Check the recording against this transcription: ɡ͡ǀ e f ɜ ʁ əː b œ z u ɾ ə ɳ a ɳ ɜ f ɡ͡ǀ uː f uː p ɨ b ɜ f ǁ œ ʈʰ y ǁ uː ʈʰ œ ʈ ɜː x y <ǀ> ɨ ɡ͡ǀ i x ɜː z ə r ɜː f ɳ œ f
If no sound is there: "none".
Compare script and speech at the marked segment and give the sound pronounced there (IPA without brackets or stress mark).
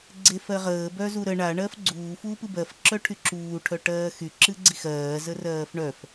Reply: ǁ